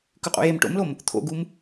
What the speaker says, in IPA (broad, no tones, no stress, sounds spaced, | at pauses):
k ʉ qʼ ṵ j e m ʈ o̰ m l o m | t̪ʰ o̰ ɡ u m